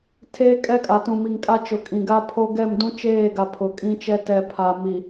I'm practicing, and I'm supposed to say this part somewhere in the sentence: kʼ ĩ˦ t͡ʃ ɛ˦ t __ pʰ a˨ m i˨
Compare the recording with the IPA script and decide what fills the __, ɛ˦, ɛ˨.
ɛ˨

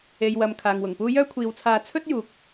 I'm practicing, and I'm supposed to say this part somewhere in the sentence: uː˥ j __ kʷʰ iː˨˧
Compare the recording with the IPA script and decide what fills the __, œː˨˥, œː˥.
œː˥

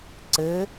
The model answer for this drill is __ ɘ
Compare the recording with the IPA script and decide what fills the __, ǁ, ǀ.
ǀ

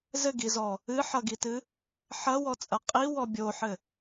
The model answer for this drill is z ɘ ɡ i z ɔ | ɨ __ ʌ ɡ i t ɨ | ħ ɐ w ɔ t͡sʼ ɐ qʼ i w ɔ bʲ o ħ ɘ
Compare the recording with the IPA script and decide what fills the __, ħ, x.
ħ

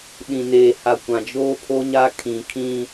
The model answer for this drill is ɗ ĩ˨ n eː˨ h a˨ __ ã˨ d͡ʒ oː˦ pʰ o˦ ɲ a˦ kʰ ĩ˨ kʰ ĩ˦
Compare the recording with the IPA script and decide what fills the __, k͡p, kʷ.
kʷ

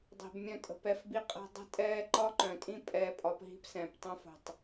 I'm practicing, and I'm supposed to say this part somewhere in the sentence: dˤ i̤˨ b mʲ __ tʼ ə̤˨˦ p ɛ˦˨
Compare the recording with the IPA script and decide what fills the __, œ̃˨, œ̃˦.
œ̃˦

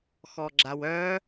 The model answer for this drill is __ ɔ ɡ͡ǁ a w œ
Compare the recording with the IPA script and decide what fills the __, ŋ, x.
x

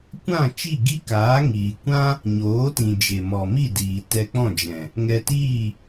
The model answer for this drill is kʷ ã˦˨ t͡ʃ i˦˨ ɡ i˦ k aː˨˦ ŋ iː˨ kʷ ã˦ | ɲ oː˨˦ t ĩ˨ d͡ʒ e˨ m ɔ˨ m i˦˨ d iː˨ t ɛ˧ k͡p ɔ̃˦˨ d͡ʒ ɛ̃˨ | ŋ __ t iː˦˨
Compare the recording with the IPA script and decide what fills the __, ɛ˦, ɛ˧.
ɛ˧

